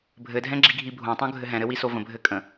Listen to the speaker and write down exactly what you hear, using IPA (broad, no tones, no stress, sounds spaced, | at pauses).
bʱ ɘ dʱ ɛ̃ ɡ͡ǁ i ɡʱ i bʱ õ tˤ õ ɡʱ ɘ ɦ ɛ̃ ɾ ɘ w i s o v ə̃ bʱ ɘ kʼ ə̃